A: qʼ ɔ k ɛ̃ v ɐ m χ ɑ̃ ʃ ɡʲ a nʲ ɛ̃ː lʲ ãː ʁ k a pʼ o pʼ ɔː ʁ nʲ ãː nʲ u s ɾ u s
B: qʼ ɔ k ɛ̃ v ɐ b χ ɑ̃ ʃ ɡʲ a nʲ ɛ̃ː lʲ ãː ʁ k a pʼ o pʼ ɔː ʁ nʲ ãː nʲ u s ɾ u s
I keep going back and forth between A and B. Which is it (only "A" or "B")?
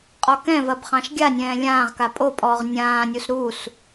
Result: B